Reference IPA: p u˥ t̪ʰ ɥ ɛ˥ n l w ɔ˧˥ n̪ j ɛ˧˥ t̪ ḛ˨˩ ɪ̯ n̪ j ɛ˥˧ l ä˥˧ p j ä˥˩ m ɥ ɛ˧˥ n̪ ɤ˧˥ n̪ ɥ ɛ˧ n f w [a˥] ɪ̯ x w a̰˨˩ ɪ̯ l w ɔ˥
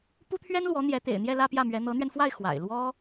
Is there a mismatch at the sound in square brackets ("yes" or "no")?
yes